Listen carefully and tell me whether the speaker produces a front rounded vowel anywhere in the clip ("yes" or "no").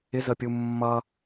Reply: no